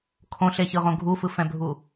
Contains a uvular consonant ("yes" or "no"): yes